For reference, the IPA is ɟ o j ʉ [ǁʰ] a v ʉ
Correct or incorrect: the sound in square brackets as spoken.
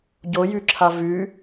correct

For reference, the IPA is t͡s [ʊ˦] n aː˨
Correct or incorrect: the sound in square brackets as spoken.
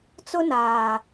correct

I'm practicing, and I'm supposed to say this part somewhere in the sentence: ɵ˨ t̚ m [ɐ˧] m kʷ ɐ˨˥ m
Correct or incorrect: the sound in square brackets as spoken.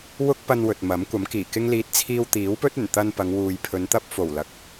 incorrect: ɐ˨˥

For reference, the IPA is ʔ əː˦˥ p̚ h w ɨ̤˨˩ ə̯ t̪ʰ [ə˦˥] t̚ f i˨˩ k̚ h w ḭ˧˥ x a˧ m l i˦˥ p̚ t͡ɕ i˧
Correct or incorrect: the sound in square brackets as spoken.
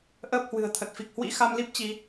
incorrect: ə˨˩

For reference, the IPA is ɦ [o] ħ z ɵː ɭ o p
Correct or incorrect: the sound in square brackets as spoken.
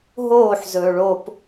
incorrect: oː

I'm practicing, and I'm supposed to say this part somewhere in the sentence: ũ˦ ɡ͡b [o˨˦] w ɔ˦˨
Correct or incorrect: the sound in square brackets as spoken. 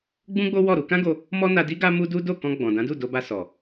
incorrect: o˦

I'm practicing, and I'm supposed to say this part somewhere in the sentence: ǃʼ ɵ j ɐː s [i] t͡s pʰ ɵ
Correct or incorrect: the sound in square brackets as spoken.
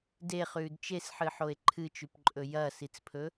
correct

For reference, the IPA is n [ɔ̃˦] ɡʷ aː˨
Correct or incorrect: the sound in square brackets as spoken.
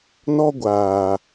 incorrect: ɔ˦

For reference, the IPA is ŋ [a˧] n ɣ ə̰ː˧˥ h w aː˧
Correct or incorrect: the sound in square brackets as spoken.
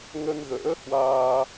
incorrect: ə˧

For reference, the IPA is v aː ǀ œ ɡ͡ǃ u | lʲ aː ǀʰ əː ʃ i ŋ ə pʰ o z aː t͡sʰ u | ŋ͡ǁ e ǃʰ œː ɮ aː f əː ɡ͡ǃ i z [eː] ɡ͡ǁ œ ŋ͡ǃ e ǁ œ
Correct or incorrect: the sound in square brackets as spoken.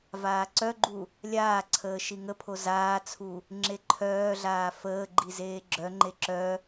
correct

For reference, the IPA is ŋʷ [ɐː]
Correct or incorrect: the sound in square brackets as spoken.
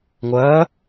correct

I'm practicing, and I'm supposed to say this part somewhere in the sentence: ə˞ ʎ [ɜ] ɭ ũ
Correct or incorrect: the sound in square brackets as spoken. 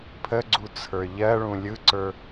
correct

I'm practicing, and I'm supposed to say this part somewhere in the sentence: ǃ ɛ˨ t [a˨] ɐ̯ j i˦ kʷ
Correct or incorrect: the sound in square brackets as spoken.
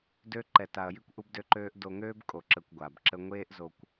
correct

